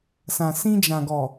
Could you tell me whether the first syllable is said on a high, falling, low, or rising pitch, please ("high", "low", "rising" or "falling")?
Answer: low